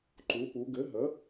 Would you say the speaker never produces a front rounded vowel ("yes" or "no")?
yes